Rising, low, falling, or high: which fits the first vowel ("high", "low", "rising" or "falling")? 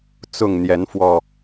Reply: falling